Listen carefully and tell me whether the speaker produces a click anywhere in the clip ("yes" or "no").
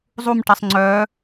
yes